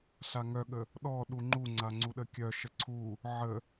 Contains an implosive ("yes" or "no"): yes